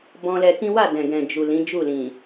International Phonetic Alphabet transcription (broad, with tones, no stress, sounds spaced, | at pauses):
b ɔ̃˧ l ɛ˧ k ĩ˦ w a˦˨ d ɛ̃˨ ɡ ɛ̃˨ d͡ʒ u˨ l ĩ˨˦ d͡ʒ u˦˨ l ĩ˨